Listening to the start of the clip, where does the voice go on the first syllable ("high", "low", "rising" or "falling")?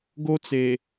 high